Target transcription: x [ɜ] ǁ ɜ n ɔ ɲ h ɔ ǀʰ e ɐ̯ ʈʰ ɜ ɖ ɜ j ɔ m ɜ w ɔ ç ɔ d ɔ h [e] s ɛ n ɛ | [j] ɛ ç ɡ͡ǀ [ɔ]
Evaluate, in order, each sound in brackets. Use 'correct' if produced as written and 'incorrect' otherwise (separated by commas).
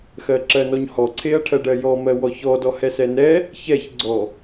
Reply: correct, incorrect, incorrect, correct